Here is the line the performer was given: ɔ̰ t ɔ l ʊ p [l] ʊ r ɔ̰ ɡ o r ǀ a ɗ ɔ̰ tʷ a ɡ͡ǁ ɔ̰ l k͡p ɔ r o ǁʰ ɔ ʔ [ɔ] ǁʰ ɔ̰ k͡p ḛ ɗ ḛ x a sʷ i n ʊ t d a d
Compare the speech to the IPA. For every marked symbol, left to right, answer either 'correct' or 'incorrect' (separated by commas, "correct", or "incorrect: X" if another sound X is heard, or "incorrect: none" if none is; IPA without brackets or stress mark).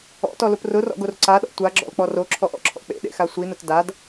incorrect: r, incorrect: ɔ̰